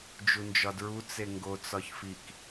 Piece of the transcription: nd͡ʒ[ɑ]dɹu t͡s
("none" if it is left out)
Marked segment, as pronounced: ɒ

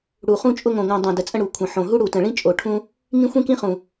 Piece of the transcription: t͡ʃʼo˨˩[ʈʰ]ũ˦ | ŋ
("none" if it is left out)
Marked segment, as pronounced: ʈʰ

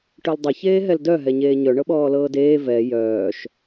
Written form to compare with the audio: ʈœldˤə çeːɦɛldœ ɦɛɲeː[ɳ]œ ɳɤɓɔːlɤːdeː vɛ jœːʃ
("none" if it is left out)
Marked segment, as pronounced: ɲ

